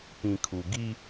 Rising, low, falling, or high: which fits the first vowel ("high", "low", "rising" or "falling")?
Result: low